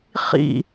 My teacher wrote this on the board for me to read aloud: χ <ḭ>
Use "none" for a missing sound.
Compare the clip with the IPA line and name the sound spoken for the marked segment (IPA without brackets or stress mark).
ḭ